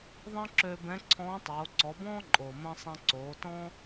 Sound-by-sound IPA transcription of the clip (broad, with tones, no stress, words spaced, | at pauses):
ðˤə̃ː˥ǁøː˧ bɛ̃˧˥ǀʰɔ̃ː˧˥tˤoː˩˧ ǀɔ˩˧bɔ̃ː˥ǃʼoː˩mə̃ː˧ sˤɛ̃˧ ǀoː˩˧ tɔ̃˥